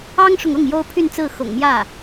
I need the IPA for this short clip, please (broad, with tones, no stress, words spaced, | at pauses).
ɑ˥ŋʂʊ˨ŋʊ˥˩ŋ jo˥ʊ̯pʰy˥˧nt͡sɹ̩˥˩ xʊ̰˨˩ŋmjä˥˩